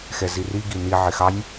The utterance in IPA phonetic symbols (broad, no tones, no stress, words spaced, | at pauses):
xɛziri ɡini ʕɪxɑnʲ